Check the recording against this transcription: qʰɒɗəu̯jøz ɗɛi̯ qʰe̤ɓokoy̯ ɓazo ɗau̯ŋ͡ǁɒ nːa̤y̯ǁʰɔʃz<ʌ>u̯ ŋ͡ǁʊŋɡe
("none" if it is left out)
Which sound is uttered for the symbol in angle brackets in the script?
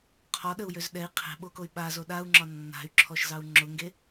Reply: ɑ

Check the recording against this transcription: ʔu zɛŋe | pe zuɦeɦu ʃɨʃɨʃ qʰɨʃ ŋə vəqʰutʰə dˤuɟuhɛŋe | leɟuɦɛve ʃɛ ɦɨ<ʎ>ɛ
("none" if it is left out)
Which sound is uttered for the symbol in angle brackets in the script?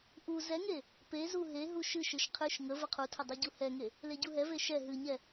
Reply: ɲ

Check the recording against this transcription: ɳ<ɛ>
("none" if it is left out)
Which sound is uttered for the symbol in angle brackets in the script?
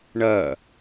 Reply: ɜ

